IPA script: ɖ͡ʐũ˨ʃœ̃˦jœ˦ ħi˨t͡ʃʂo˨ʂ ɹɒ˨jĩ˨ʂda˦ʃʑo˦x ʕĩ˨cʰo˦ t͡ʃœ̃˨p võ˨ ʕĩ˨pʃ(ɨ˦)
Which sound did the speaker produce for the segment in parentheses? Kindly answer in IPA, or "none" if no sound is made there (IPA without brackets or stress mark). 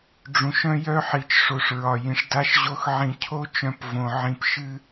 ɨ˦